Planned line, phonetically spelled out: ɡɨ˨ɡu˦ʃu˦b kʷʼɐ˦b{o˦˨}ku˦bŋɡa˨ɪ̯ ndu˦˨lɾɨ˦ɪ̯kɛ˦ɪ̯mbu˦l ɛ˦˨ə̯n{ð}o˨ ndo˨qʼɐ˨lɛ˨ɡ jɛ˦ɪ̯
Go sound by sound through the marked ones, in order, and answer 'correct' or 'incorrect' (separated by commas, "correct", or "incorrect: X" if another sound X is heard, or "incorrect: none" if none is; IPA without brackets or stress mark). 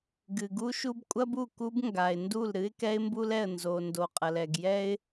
incorrect: u˦˨, incorrect: z